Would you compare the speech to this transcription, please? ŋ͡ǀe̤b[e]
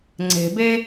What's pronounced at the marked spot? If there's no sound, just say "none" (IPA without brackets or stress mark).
e